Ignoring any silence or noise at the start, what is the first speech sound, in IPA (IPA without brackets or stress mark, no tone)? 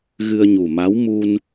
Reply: ɣ